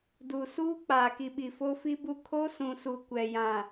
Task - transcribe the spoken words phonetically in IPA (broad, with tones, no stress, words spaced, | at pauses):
du˨suː˦ k͡paː˨ki˨ɓi˨ fo˦fi˦bu˦ kʰo˦sũ˨su˨ kʷɛ˨jã˨